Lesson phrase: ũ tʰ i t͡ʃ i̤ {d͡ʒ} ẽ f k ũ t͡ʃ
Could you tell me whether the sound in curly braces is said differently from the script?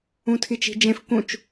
no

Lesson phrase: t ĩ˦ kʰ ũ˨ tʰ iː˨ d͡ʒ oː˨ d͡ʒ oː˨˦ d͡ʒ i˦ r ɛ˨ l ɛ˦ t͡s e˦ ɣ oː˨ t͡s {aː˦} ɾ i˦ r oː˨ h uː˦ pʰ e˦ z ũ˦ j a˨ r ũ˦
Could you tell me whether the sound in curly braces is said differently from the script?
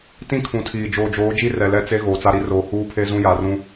yes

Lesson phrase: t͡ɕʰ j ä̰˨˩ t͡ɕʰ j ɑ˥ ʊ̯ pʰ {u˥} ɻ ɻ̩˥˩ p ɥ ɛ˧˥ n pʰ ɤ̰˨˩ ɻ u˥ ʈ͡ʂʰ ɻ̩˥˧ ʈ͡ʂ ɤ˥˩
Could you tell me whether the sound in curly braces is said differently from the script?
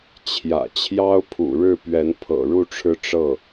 yes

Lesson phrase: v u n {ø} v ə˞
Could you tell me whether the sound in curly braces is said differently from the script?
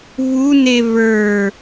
yes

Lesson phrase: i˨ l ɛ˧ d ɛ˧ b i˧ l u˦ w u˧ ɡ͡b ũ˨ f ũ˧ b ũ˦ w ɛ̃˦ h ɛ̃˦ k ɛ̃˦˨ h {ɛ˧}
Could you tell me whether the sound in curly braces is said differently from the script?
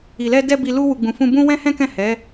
yes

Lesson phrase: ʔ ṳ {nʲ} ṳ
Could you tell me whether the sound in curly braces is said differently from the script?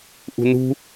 yes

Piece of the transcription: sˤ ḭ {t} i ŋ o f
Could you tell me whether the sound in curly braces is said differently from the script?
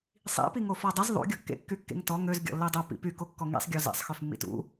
yes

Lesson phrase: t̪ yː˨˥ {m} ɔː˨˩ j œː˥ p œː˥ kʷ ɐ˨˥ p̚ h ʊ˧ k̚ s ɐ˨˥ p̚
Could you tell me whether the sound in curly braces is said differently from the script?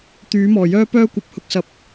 no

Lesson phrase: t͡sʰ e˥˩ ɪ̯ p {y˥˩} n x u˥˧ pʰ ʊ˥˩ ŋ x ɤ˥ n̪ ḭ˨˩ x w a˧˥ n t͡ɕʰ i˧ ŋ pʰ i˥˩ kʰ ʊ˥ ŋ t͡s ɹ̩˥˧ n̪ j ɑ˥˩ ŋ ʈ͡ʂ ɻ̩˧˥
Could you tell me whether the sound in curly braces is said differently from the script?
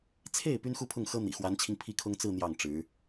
yes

